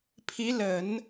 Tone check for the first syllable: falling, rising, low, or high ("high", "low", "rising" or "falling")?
rising